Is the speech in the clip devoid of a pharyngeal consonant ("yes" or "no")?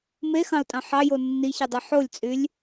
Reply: no